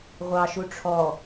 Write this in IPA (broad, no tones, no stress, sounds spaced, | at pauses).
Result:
ʁʷ ɑ ʃ u ʈ͡ʂʰ ɔ